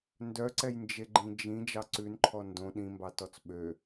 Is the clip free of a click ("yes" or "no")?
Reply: no